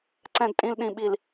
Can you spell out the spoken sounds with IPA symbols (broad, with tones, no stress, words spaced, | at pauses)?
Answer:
ǀɛ̃˨dtʼĩ˨l ɗĩ˨ɓi˨l